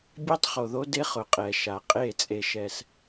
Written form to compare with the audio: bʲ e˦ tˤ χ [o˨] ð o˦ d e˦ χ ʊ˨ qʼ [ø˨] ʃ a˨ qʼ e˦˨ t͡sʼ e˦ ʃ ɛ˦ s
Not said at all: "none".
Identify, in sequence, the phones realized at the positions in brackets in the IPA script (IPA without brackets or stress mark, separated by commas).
o˨, ɛ˨